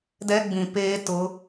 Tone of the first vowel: high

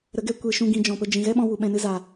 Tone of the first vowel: rising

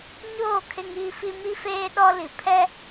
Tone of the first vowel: falling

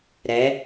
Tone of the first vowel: rising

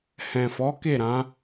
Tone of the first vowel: low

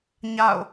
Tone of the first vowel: falling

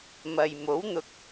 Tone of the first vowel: low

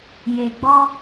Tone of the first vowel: low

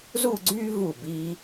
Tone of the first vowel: falling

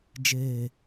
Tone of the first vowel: low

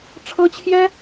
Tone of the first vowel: high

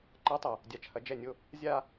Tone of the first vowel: rising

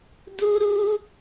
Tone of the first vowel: high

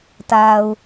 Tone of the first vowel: low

